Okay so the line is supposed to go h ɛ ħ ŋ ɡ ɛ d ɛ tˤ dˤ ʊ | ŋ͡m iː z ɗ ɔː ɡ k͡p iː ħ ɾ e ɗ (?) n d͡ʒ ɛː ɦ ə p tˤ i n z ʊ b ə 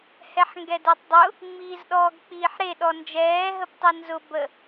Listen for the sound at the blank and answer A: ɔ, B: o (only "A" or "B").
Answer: A